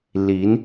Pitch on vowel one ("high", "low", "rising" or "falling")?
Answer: rising